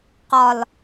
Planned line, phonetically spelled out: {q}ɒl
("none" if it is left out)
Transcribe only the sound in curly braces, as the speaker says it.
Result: q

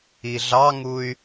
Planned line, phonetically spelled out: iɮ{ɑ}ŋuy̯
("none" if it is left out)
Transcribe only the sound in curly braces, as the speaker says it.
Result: ɑ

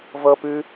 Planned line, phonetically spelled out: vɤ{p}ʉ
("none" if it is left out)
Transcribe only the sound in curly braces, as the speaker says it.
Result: p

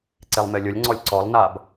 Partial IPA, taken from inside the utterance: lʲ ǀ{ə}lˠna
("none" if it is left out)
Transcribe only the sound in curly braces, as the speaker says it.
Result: ɔ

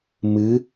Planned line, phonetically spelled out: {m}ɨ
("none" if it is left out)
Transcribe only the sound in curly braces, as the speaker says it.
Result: m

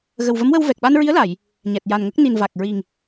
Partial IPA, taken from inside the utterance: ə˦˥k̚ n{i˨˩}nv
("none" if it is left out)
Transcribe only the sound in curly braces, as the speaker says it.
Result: i˨˩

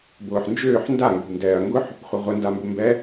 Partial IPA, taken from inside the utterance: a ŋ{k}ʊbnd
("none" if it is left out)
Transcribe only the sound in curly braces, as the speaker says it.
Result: ɡ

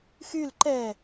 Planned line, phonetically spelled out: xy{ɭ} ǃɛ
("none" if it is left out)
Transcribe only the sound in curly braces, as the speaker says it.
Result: l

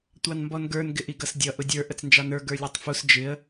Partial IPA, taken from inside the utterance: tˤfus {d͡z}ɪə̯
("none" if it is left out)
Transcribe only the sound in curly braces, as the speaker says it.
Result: d͡ʒ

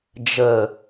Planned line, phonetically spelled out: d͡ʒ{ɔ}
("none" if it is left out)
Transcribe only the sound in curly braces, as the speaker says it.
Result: ə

